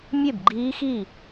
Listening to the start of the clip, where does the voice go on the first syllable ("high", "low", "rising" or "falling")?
falling